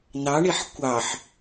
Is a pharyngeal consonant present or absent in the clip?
present